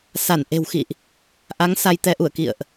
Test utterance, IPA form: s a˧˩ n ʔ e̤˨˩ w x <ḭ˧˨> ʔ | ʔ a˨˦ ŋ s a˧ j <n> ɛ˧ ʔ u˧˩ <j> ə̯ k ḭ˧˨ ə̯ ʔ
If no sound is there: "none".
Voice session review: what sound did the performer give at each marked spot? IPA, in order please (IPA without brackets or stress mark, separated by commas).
ḭ˧˨, t̪, none